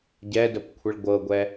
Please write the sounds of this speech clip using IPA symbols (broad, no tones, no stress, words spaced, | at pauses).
ɟɛdəpkʷʰəɭ ɡʷɤɡʷɛ